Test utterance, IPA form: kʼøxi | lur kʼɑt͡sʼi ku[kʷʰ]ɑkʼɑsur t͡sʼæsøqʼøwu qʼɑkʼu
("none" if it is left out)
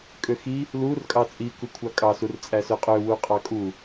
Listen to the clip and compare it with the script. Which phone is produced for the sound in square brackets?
kʷʰ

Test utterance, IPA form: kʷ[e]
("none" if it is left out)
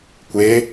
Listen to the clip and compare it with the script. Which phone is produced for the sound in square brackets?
e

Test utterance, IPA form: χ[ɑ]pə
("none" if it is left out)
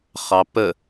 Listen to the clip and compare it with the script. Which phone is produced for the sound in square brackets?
ɑ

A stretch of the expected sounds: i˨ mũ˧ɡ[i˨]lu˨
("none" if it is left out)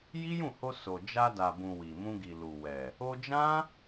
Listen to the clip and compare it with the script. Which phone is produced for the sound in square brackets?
i˨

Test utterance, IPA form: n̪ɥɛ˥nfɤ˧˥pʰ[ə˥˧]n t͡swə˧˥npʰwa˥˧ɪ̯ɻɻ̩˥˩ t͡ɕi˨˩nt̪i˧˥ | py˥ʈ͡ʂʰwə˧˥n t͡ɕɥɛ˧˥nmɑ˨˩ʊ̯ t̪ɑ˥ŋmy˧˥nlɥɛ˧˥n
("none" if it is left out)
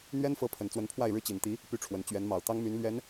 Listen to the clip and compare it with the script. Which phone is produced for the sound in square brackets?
ə˨˩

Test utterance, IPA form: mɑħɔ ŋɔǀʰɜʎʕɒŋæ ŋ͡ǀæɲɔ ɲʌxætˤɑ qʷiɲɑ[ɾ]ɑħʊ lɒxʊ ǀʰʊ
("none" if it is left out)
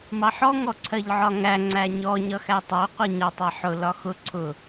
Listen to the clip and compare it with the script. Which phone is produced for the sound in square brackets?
tˤ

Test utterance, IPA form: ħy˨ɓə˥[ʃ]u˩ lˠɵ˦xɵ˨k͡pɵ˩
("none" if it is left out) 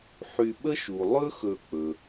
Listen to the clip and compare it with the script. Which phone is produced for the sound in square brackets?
ʃ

